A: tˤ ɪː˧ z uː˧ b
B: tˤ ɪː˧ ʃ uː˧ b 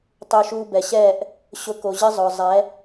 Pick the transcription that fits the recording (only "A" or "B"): B